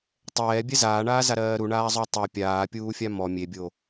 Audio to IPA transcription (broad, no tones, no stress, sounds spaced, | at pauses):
tˤ ɛː bʲ ɛ z aː ɳ aː z a ɾ ɜː ɾ u ɳ aː zˤ o tˤ u pʲ aː pʲ uː fʲ a m ɔ mʲ e bʲ o